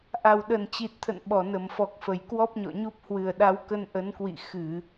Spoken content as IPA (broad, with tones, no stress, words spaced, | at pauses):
ʔa˨˩wɗə˨˩nt͡ɕi˨˩t̚t̪ʰə̰˧˨n ɓɔ˧˩nə˧˩mfɔ˨˩k̚fə˧˩j kwɔ˦˥p̚ɲɔ̰˧˨ɲu˦˥p̚ hwɨ˨˩ə̯ɗa˨˦wkə˧n ʔə˨˦nkwḭ˧˨ xɨ˧˩˨